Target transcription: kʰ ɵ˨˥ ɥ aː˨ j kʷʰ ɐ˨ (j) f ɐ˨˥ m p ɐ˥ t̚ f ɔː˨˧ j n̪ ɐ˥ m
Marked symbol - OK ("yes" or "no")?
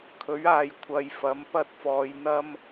yes